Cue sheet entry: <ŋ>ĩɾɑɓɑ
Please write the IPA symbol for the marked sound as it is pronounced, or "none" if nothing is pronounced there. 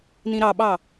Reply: n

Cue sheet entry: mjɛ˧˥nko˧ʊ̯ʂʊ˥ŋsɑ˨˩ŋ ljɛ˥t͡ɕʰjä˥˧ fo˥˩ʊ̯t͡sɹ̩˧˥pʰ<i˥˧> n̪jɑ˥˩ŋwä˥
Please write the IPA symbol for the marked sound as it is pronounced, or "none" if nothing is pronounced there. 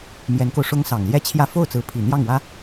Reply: i˨˩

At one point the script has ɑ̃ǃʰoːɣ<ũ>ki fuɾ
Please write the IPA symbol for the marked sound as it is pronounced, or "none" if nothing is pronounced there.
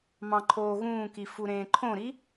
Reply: ũː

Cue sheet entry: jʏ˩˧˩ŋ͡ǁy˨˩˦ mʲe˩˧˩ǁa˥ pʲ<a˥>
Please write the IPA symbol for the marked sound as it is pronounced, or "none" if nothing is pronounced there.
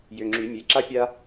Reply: a˥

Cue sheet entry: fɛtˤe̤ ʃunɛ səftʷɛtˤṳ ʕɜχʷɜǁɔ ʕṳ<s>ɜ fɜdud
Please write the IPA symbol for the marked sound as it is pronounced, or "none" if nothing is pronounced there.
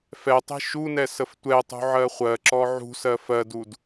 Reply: s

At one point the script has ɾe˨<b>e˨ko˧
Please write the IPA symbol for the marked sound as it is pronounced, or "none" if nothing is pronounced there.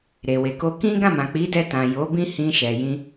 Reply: w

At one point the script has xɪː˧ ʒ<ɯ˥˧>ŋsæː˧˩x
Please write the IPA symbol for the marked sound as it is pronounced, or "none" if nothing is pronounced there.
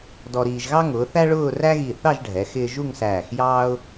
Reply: u˥˧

